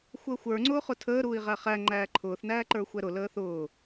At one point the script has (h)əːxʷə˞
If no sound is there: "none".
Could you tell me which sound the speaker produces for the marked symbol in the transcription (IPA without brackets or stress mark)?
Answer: xʷ